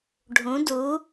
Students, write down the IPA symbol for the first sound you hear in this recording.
ɖʱ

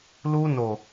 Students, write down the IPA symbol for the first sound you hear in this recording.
l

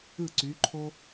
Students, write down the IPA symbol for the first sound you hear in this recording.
ɯ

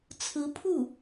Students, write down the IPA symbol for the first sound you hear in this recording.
t͡sʰ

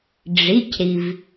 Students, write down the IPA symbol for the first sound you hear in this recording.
ɖ͡ʐ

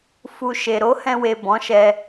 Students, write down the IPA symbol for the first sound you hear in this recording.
f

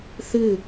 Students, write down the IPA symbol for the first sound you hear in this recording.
θ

